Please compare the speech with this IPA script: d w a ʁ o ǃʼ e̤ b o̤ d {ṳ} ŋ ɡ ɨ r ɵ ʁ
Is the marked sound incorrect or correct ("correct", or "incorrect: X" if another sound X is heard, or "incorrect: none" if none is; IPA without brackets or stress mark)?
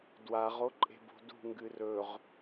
correct